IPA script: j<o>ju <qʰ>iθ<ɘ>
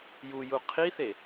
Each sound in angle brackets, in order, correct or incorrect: incorrect, correct, incorrect

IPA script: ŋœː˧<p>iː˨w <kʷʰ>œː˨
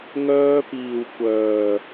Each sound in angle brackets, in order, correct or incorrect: correct, incorrect

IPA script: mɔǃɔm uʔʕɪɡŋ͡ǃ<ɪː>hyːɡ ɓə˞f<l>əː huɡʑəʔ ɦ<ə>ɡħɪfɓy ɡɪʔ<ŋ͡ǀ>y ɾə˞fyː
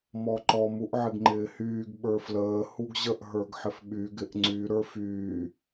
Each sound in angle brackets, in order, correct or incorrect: correct, correct, incorrect, correct

